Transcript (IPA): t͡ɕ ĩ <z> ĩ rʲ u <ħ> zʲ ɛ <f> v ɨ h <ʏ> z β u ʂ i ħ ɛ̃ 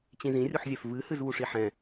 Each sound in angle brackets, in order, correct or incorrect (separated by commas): correct, correct, correct, incorrect